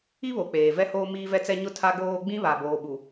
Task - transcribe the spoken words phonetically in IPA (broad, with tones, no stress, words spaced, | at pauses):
i˦βo˨ k͡peː˨vɛ˦hoː˦ miː˦vɛ˦t͡sɛ˦ ɲʊ˦tʰa˦ɡoː˦ ɡ͡bĩ˦βa˨ boː˨ɓu˨